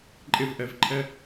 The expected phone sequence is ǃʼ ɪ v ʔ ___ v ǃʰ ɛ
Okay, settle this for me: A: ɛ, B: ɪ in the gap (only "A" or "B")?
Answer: A